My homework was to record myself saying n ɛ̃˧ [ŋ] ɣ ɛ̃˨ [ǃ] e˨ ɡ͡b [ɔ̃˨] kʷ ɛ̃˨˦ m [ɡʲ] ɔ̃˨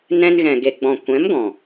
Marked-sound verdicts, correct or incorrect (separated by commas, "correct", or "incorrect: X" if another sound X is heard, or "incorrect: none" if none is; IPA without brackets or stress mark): incorrect: n, incorrect: ɡ, correct, incorrect: ɡ